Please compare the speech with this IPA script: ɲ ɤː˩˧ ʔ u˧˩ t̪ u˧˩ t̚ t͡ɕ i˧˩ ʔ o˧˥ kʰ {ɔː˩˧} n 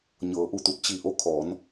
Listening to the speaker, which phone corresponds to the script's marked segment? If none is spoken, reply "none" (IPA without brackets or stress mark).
ɔː˩˧